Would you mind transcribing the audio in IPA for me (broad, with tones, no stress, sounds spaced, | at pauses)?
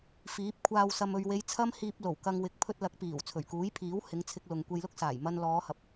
f iː˨˥ p̚ kʷʰ aː˧ w s ɐ˨ m ɵ˨ ɥ w e˨˧ j t͡sʰ ɐ˥ m h iː˧ p̚ l o˨˩ w k ɐ˧ ŋ w ɪ˨˥ k̚ pʰ ɵ˧ t̚ l ɐ˨˥ k̚ p iː˨˩ w t͡sʰ ɵ˨˩ ɥ k uː˨˥ j pʰ iː˨˥ w h ɪ˨˧ ŋ t͡sʰ ɪ˧ k̚ l ʊ˨ ŋ kʷ e˧ j l ʊ˥ k̚ s aː˨˩ j m ɐ˧ n l ɔː˨˧ h ɐ˨ p̚